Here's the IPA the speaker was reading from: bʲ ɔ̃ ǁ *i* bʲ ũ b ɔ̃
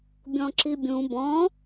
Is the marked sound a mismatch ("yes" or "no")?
no